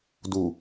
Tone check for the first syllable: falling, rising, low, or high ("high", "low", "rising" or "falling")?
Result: low